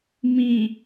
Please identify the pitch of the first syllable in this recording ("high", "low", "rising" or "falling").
low